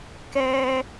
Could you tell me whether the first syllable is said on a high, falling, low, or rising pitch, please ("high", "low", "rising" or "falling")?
low